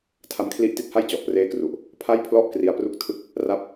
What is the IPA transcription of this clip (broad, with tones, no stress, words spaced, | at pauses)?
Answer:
tʰa˧mkʰli˦˥ʔti˦˥t̚ha˥˩j t͡ɕɔ˨˩ʔpreː˦˥kru˨˩ʔ | pʰa˥˩jpʰlɔ˥˩ʔ kri˧a̯pru˥˩k̚ tʰɯ˥˩k̚ | ra˦˥p̚